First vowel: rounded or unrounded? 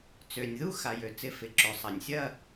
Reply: rounded